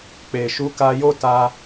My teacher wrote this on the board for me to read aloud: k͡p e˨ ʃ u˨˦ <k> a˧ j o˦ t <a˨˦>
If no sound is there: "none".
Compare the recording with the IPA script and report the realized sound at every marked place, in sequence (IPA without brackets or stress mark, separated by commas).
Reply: k, a˧